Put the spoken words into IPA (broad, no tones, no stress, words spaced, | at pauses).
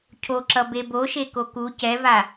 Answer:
cʰoǁʌ beboʃe koku cɛva